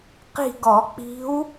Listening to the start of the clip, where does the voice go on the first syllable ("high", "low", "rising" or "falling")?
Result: falling